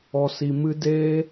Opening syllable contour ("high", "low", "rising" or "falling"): low